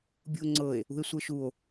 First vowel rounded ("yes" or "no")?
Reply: yes